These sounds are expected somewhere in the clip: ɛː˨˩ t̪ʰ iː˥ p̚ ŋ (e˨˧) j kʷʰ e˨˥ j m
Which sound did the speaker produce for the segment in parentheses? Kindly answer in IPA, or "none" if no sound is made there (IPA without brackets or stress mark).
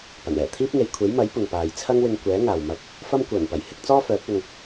e˨˧